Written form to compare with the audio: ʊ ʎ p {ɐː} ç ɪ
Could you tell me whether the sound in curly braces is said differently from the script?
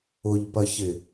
yes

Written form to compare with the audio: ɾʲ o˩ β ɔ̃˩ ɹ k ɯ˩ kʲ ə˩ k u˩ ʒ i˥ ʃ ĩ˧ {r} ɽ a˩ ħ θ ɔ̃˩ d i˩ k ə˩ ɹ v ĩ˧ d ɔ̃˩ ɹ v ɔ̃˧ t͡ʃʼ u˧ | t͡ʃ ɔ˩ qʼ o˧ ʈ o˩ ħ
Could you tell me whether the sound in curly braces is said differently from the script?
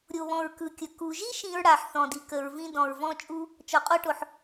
yes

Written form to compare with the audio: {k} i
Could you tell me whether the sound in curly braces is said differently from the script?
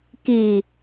no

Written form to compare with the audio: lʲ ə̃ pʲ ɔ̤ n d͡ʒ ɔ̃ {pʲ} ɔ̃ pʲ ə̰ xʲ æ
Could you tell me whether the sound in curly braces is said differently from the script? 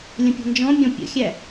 yes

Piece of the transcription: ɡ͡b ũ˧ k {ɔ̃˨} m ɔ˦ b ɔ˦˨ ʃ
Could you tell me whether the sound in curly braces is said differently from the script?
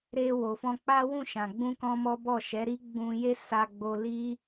yes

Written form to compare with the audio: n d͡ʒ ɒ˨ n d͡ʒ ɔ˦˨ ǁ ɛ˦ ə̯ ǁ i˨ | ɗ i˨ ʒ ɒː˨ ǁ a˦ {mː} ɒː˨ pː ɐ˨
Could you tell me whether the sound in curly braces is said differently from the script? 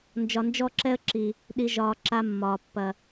no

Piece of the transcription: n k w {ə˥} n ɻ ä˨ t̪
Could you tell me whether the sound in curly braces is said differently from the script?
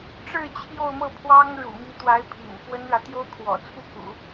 no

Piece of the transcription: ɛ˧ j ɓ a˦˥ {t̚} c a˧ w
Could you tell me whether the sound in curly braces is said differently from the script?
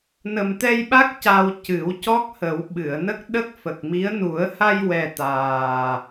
yes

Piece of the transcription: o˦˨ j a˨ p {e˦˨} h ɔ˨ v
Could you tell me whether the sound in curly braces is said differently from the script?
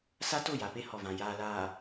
yes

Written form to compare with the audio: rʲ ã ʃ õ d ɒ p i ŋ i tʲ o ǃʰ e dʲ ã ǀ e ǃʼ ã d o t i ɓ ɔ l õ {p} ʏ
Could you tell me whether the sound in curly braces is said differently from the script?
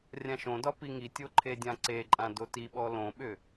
yes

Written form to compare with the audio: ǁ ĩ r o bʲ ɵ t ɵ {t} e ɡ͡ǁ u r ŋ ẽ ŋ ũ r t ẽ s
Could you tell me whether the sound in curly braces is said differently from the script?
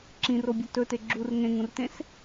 no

